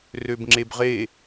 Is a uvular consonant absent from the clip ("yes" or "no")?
no